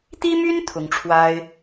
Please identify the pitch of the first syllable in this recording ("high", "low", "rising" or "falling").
high